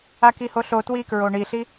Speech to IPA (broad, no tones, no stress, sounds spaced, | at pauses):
a k i h o ɬ o t w i k ɹ o ɳ i ɬ i